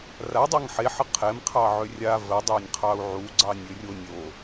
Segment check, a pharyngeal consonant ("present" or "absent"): present